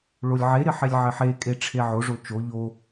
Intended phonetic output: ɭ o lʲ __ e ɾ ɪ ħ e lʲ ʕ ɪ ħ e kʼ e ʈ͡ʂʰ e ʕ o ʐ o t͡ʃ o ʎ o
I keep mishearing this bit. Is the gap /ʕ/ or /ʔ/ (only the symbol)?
ʕ